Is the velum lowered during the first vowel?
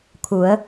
no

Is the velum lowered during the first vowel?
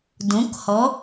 yes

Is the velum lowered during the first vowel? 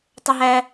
no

